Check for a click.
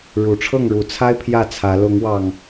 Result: absent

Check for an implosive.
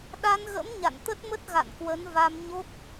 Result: present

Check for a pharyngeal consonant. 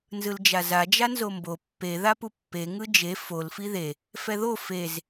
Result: absent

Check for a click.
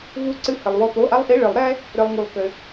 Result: present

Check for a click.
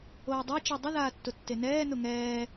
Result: absent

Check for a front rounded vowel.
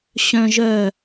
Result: present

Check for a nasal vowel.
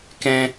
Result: present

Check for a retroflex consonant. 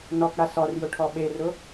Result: present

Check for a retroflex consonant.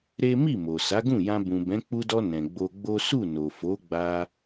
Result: absent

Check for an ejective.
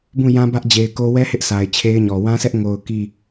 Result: absent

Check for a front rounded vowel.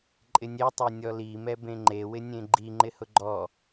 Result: absent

